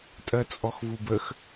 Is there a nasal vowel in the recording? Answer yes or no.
no